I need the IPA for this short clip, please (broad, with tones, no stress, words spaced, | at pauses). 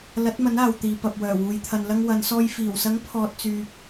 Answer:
lɐ˨˥t̚mɐ˨˥naː˨w t̪iː˨pɐ˨p̚wœː˨˩wuː˨j t̪ʰɐ˨nlɐ˧ŋwɐ˨˧nsɔː˧j fiː˨˩wsɐ˨˥ŋ pʰɔː˧t̚t͡syː˧k̚